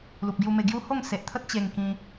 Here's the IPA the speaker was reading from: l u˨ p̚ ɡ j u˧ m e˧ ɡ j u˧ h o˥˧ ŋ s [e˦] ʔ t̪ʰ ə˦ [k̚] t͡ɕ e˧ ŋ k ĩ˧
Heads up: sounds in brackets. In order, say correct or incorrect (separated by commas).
incorrect, incorrect